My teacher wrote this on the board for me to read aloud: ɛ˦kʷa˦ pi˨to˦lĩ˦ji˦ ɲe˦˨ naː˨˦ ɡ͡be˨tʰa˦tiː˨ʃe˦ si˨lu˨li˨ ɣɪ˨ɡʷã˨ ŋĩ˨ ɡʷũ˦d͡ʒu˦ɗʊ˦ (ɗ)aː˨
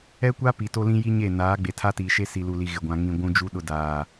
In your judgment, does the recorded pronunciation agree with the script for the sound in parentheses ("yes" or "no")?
no